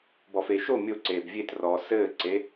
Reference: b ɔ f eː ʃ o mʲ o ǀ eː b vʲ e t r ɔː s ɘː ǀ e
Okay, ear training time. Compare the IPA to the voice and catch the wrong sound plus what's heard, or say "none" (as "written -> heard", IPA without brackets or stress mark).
none